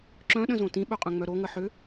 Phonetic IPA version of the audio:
ǁ œ̃ ɗ ə̃ z õ t ĩ ɓ œ qʼ œ̃ ŋ͡m œ ɾ o ŋ ə ħ ʏ

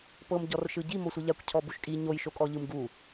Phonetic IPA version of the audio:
p ɤ m ɟ ɔ r ʃ ɯ ɟ i m o sʷ ɯ ʎ a kʷ cʰ ɔ b u ʃ kʼ i ɲ o j ʃ o kʼ ɔ ʎ ɯ m ɡ u

